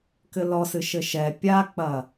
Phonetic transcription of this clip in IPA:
k ɘ l ɔ s ɨ ʃ ɘ ʃ ɛ pʲ a k͡p ɐ

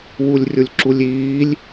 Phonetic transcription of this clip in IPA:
w u lʲ rʲ ʊ lʲ ǁ u lʲ iː lʲ

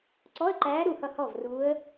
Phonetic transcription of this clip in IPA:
ǀ ɔ˧˥˧ ə̯ ǃ æː˧˥ ɾ u˥˩ h ʌ˥˩ h ɔ˥˩ v r uː˧˥ ə̯

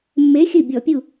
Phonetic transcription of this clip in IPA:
mː e˨˥ xʲ ɨ˧˩ bʲ ɔ˧˩˧ pʲ u˧˩

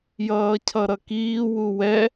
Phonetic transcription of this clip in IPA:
j ʌː cʰ ʌ ɾ ʌ k iː w u w ɛ

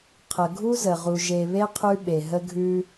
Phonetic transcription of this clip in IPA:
qʰ ə˨ ɡʱ u˦ z ə˨ ʁ u˨ ʒ e˨ β e˦ qʰ ʉ˦ ɓ e˨ ɦ ə˦ ɡʱ ʉ˦

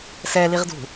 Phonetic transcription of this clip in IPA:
s ɛ l i ʁ d ṳ

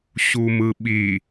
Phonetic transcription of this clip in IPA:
ɕ u m ɯ ɓ i

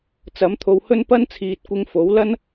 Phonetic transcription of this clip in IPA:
t͡s ɐ˨˥ m t̪ʰ o˧ w h ɵ˥ n p ɐ˥ n t͡sʰ iː˨ t̚ kʷ ɪ˧ ŋ f o˨˥ w l ɐ˥ n

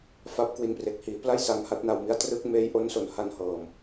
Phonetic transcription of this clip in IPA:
f a˦˥ p̚ k w i˧ n p r e˨˩ k̚ h iː˩˦ p l a˥˩ j s a˧ ŋ h a˦˥ t̚ n a˧ w m i˦˥ a̯ t r ɯ˦˥ k̚ m eː˦˥ j ʔ o˦˥ n s o˨˩ n h a˧ n h ɤː˨˩ m

